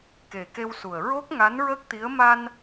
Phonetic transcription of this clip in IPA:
ke˨˩ke˧wsu˨˩ə̯ ɹo˦˥k̚ ŋa˧˥nɹə˦˥k̚t̪i˧˥ə̯ ma˧n

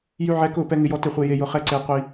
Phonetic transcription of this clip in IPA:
jy˦ʕɛ˦kʊ˥˨pɛ˦ ŋɪ˦jɔ˦tɪ˥˨χʷe˦ je˦jʊ˦ χɛ˥˨ǀe˦ qʷi˦

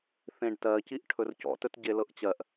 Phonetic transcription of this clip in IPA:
θẽɖtɜciʔ ʈʰɵrcɔ̰tɵt ɟelɤʔt͡ɕɜʔ

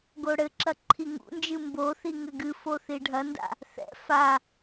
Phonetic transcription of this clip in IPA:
ɡoɽɘǁɐ ǃʰiŋṵnd͡ʒɨ mboθi ŋɘɡɨfo θiɖʱɐnda̰ | θɛ̰ fa

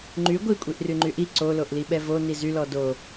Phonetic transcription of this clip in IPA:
ŋ͡ǃy ɡʷikʷʼiʔryŋ͡ǃy ʔi ǀoloʔli ɓɛvo nizylɔ do

